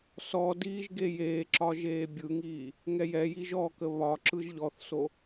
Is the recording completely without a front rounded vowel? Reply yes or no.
yes